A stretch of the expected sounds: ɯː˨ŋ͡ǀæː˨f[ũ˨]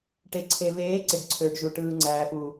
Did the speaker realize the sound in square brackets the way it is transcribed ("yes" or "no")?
no